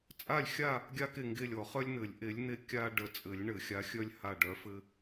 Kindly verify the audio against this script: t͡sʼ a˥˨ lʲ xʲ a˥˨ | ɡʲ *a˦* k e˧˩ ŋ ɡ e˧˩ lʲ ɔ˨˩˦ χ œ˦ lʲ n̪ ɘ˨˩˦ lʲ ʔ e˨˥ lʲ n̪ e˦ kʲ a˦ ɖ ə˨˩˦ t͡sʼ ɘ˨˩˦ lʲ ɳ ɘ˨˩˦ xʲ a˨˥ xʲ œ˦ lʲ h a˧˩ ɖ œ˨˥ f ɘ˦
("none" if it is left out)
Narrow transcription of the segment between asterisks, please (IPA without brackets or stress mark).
a˦